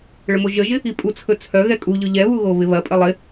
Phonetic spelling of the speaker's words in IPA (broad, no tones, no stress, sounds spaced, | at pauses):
ɭ ə m o ʒ ə ʒ ɪ | i pʼ u t͡sʰ ɵ t͡sʰ œ ɣ ɛ kʼ u ʎ ɵ ʎ ɛ β u ɣ o β ɪ β ɐ pʼ ə lˠ ɪ